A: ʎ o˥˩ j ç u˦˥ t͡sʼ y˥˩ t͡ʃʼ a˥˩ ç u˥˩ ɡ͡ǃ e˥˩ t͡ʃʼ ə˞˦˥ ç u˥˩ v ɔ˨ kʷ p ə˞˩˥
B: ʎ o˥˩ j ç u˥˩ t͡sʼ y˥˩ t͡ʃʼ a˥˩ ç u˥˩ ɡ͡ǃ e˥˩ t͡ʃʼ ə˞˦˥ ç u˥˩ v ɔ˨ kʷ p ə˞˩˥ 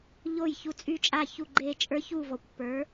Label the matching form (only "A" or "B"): B